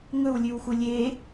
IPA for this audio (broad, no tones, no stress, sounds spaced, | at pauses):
ŋ ɵ w lʲ ʉ w x u lʲ e